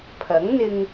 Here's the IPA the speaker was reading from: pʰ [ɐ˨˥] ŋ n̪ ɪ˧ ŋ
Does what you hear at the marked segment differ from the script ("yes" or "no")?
no